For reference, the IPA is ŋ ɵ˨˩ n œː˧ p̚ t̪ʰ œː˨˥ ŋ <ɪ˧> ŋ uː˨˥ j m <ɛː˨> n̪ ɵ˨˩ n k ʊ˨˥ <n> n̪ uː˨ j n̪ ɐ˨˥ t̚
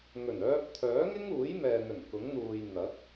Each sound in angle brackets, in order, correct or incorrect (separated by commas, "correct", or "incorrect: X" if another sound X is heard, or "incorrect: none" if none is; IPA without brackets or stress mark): incorrect: ɪ˥, correct, incorrect: ŋ